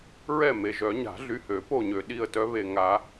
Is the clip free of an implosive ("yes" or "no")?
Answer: no